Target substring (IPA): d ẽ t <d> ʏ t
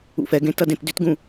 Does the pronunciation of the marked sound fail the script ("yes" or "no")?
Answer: no